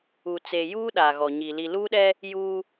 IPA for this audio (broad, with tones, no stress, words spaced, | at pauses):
u˨ t͡se˨juː˦ ɗa˨ɣɔ˨ɲi˨ li˨luː˦ɗɛ˦ | juː˦